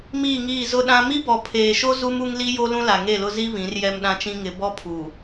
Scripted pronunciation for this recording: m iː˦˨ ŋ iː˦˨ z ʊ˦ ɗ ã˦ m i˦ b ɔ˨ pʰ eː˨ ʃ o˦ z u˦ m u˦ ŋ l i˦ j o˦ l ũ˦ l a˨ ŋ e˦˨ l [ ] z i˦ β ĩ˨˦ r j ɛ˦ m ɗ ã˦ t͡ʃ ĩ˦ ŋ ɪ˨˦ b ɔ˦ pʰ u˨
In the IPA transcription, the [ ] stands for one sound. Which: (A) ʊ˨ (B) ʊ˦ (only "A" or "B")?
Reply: B